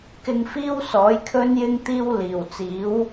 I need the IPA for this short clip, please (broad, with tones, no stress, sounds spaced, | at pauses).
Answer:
k ɪ˧ ŋ f iː˥ w s ɔː˨˥ j kʰ ɵ˧ n j ɪ˥ ŋ t̪ iː˥ w l iː˨˩ w t͡s iː˨˥ w